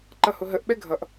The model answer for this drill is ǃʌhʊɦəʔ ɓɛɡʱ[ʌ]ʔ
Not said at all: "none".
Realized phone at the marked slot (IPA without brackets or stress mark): ʌ